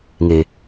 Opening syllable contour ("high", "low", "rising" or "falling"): low